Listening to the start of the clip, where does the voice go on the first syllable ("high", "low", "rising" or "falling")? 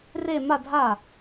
falling